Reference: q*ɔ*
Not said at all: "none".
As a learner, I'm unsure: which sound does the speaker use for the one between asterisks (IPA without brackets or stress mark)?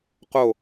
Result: o